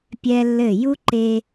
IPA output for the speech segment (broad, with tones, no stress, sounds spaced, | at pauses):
pʲ ɛ˦ lː ɘ˦˨ j u˦ ǃ e˧